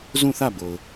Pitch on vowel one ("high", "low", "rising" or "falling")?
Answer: falling